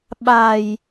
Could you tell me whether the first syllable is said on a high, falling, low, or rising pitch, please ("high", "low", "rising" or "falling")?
low